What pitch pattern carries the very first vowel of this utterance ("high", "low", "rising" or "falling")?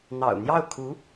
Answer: low